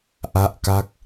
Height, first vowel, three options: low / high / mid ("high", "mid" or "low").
low